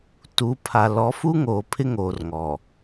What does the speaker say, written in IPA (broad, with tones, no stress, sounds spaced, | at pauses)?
t u˨˦ pʰ a˨ l ɔ˨˦ f u˦ ŋ oː˨ pʰ ɪ˦ ŋ oː˨ r ŋ ɔ˨